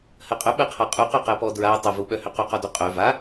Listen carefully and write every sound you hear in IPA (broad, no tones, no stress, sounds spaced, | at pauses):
h ɜ qʼ œ ɓ ɜ qʰ a qʼ u q œ q ɜ p ɔ d ɹ a tˤ ʏ v u ɓ œ h ʏ q u q ɔ d o qʼ œ v a